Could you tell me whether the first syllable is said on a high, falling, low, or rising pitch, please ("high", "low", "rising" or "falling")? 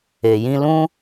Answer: low